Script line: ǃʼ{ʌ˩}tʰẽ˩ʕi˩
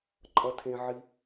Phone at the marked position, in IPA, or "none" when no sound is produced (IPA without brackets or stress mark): ʌ˩